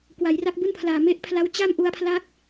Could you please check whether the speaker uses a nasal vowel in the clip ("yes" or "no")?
no